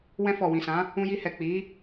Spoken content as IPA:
w ɛ̃˧ f ɔ˨ w ĩ˨ s ã˨˦ | ũ˧ j i˧ h ɛ˨ k͡p i˨˦

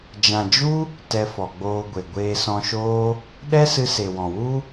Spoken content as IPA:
d͡ʒ ã˨ d͡ʒ u˦ | t ɛ˧ f ɔ˨ ɡ͡b oː˧ ɡʷ e˨ ɡʷ eː˧ s ɔ̃˧ ʃ oː˦ | ɗ ɛ˦ s ɨ˧ s e˨ w ɔ̃˨ w u˦

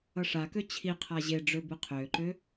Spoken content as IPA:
ʌ ʂ a k ø t͡ɕʰ i qʰ a ʑ e ɖ͡ʐ ø b ɨ qʰ øː ǃ ø

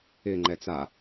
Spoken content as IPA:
ɪ ŋ͡ǃ ɛ t͡s a

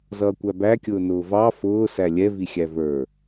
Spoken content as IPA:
z ʌː kʷ æ b æ kʲ ʊː n ʊː v ɑ f ʊː s æ lʲ ɛ v i xʲ æ v ə˞

